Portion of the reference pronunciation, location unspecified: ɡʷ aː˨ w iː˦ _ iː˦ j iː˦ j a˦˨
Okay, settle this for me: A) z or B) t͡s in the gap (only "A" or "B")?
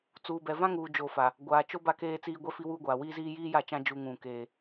A